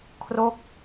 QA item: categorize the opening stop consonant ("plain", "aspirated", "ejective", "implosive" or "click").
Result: aspirated